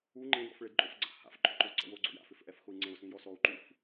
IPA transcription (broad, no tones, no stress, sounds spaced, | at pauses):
u ŋ͡ǃ ẽ d ɔ̰ f ɭ e d ǃʼ o f ɡ͡ǀ a̰ h a̰ f ǃʼ o ǃ ɔ ǀ ɔ̰ w o ɡ͡ǀ o̰ j a̰ f ɪ f ʔ ɛ f x ʊ i̯ ŋ͡ǀ ẽ u̯ s ĩ j ɔ s ɔ u̯ ǃ u f